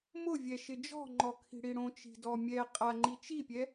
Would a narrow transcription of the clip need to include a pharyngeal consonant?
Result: no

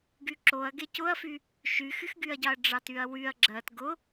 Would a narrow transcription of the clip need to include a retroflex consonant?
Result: yes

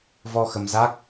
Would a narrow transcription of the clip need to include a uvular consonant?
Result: no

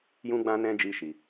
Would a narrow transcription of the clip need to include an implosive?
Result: no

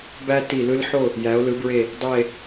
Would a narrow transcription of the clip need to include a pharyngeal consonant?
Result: yes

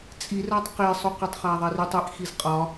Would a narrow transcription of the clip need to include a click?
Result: no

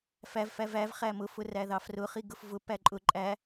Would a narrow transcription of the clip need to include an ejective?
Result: yes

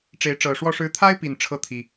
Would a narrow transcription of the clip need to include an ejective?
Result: no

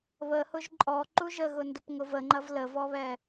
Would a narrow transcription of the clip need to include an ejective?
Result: yes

